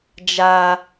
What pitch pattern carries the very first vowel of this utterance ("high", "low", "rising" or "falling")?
high